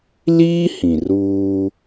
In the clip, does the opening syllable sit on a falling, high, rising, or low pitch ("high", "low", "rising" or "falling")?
high